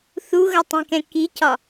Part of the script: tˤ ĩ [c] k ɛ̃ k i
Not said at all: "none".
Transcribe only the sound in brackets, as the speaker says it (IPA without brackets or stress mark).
none